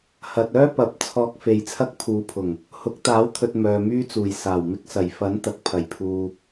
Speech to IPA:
hɐ˨t̚œː˥pɐ˨˥p̚ t͡sʰɔː˧k̚fe˨˧jt͡sʰɐ˥k̚ pʰuː˨˧pʰʊ˨˩ŋ | hʊ˨˥k̚t̪aː˨˥wt̪ʰɵ˨t̚ mœː˨myː˥t͡suː˨˩j saː˨˩wmɪ˧k̚ sɐ˨˩jfɐ˨˥n t̪ɐ˨k̚pʰɐ˨˩jpʰuː˨

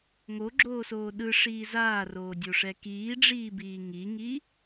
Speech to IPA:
ŋoɡ͡ǁoːsoː ɗɯʂiː zaːroːdʲoʂɛ kiːɖ͡ʐiːbiː ŋiŋi

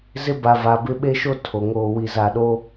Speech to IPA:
zɪ˦ba˨ va˨bɪ˦ ɓe˦ʃo˦ tʰo˨ ŋoː˨wi˨ za˨ɗo˦

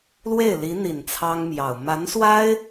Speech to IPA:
lwe˥˩ɪ̯li˧˥n̪i˨˩n t͡sʰɑ˥ŋmjɑ˨˩ʊ̯ ma˧˥nswa˥ɪ̯

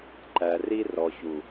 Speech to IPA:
ǃæ˨ ri˦rɔ˨çu˨

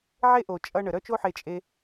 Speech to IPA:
ʕe˥ʔo˩t͡ʃʼʌ˧ ɳə˩ɾœ˥t͡ʃo˥ħe˧ t͡ʃʼe˧

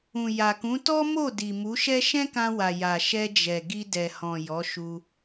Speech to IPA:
ũ˨ja˨kũ˨˦ tɔ˦mo˦˨ di˨mu˨˦ʃɛ˦ ʃɛ̃˦kã˧wa˨ ja˨ʃɛ˧ d͡ʒɛ˨ɡi˧ dɛ˨hɔ̃˨ jɔ˨˦ʃu˧

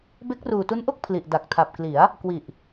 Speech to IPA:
be˦˥k̚ruː˨˩tu˦˥nʔo˥˩k̚ pʰli˨˩ʔda˨˩k̚tʰa˨˩p̚kli˩˦a̯ | kwi˨˩ʔ

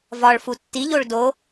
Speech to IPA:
vɒɭ futːiʎoɭ do

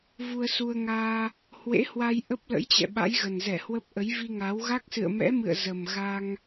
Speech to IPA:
vu˧ə̯su˧ə̯ŋaː˧ | hwḛ˧˥hwa˧j ʔə˦˥p̚lə̰˧˥j t͡ɕɛ̰˧˨ɓa̰˧˥jɣə˨˩nzɛ˧˩ hwə˦˥p̚ ʔə˨˦jvi˧ŋa˨˦w ɣa˦˥k̚sɨ̰˧˨ə̯mɛ̰˧˥mɨ̰˧˨ə̯ zə˨˩mɣa˧ŋ

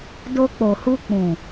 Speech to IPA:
do˧k͡po˨hu˧ k͡pũ˨

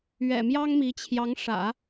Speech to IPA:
ɥɛ̰˨˩mjɑ˥ŋmi˧˥ t͡ɕʰjɑ˧˥ŋʂä̰˨˩˦

